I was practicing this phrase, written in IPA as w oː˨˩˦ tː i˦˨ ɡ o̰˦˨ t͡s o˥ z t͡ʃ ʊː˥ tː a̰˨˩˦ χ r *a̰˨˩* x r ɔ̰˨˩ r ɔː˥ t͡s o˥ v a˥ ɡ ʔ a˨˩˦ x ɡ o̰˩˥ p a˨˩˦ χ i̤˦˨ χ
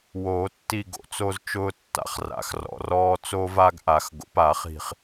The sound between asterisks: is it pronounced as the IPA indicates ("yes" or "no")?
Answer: yes